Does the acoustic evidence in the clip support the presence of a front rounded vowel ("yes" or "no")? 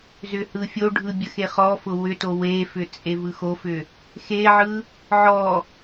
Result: yes